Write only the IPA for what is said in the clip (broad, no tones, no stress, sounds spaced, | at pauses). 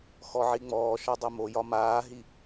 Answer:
x ɔ ʕ i ŋ͡m ɔː ʃ ɒ dˤ o m o j ɒ m aː ɦ i